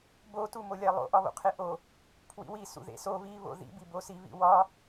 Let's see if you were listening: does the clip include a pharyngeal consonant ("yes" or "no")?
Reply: no